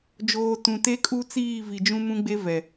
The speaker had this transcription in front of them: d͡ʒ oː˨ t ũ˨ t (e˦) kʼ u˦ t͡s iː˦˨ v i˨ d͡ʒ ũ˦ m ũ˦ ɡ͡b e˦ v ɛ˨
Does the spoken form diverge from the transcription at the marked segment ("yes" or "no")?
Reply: no